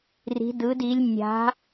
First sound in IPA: r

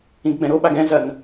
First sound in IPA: ĩ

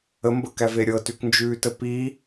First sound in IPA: ə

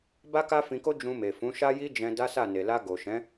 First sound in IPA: b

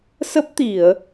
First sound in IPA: s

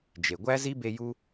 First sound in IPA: d͡ʒ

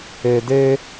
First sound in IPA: e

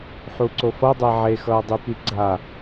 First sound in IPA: ħ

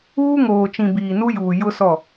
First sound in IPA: uː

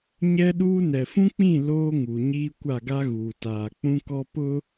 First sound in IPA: ɲ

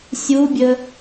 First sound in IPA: sʲ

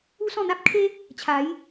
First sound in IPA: u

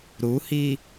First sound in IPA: ɾ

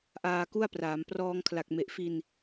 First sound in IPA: ʔ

